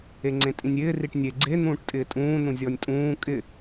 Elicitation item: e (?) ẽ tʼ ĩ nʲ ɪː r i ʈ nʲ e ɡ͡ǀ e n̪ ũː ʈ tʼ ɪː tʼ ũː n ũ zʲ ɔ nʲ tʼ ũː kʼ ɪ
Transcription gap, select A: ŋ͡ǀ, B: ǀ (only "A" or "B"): A